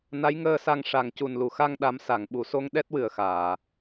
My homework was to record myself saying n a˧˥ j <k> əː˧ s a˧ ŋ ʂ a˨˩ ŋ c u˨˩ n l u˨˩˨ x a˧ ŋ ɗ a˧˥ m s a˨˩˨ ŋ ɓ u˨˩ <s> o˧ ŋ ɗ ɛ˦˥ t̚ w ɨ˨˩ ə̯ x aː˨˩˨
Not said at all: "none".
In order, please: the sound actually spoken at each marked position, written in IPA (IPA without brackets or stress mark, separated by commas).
ŋ, s